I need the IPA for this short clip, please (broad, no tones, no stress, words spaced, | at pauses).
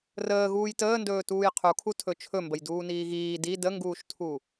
rəː ɣuːjtəːndɵː tuːjqʰukʰu tʰɵt͡ʃʰɵ mbəjduːniːɣiː di dəŋɡuːʃtʰu